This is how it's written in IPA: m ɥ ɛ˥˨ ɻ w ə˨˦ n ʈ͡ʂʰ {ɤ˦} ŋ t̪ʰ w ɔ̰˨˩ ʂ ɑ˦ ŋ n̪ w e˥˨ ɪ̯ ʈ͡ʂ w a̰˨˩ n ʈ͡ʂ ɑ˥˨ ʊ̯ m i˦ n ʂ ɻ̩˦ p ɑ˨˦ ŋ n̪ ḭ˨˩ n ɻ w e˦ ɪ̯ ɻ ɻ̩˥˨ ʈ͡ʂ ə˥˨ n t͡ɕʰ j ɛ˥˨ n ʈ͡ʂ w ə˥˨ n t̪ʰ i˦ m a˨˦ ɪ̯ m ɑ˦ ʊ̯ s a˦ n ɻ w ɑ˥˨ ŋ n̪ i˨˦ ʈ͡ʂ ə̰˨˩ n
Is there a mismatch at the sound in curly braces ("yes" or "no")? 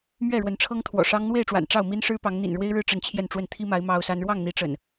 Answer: no